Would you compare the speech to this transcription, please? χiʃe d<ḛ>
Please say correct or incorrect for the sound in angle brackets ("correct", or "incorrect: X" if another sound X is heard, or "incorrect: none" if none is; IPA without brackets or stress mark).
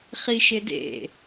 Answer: correct